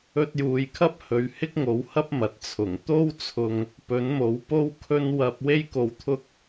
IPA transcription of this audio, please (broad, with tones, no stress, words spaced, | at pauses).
ɵ˧t̚juː˨jkʰɐ˥p̚hɵ˨ɥ hɪ˥k̚ŋo˨˥whɐ˥p̚ mɐ˨t̚t͡sʰʊ˨˩ŋ t̪o˥wt͡sʰʊ˧ŋ | pɵ˨˥nmo˨˥w po˥wkʰɵ˥n wɐ˥p̚ we˥jko˧wt̪ʰʊ˥k̚